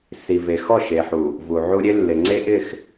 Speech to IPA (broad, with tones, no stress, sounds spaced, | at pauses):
s i˨ v e˨ x ɔ˦˨ ʃ e˨ ħ u˨ | v u˨ ʕ u˦ ɾʲ e˦ lː ɪ˨ ŋ͡ǀ e˦ ʔ ɪ˦˨ x